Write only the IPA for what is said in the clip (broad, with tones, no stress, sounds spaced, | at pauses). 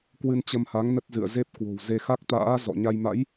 k w ɨ˧ n t͡ɕ ə˧ m h a˨˦ ŋ n ə˦˥ t̚ z ɨ̰˧˨ ə̯ z e˦˥ p̚ k w o̤˨˩ w z e˧ x a˦˥ k̚ t̪ a̰ː˧˥ z ɔ̰˧˨ ɲ a˧ j m a̰˧˥ j